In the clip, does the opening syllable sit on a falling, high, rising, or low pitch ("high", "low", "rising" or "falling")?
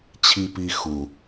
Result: high